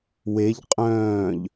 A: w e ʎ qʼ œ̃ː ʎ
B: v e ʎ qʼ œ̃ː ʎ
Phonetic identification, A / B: A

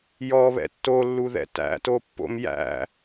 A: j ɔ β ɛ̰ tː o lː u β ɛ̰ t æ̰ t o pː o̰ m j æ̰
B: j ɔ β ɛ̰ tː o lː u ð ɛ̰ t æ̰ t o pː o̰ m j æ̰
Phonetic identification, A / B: B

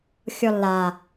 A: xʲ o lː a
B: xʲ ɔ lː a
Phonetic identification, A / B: B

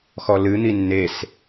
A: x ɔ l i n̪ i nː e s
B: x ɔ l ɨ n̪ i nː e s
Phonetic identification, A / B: B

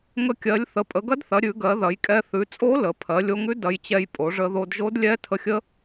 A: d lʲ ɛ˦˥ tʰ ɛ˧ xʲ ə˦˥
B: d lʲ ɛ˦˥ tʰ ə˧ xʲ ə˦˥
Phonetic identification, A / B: B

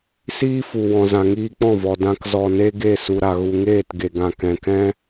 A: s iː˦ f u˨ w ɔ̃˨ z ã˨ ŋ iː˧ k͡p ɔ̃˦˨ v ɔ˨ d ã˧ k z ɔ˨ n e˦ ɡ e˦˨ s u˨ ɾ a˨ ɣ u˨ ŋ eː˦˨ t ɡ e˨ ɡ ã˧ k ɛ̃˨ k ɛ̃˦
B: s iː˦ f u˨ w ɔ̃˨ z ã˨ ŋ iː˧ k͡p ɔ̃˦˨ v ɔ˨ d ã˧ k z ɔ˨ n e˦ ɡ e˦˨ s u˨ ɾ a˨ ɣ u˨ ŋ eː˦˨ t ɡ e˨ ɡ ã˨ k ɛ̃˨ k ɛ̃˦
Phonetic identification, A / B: B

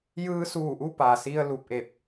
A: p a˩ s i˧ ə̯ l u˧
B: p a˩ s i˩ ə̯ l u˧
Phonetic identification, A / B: A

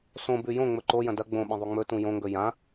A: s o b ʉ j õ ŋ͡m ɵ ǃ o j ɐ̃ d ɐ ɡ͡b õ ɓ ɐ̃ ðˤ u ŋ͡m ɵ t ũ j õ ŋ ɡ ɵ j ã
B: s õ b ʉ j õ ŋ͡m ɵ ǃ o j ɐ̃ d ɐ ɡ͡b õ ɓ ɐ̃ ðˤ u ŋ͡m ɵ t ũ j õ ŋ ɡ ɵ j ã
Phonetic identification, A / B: B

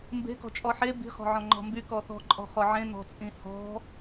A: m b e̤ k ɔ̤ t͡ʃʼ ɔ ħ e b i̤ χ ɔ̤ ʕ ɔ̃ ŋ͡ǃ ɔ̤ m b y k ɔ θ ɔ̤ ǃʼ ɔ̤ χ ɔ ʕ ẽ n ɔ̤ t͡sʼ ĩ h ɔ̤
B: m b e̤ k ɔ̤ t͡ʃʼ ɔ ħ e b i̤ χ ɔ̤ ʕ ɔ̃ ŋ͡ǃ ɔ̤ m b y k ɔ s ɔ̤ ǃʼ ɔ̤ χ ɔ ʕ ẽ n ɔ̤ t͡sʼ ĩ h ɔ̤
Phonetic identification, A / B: A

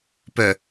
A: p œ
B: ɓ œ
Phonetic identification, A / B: A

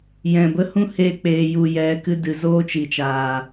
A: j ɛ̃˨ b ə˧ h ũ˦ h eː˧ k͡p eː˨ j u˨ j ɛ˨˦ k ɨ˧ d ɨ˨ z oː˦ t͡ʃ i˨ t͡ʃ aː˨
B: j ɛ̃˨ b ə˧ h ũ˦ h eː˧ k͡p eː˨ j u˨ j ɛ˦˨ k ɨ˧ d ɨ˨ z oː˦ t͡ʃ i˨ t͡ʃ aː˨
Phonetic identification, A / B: A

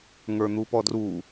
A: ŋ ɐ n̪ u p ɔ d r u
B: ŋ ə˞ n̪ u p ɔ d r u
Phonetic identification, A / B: B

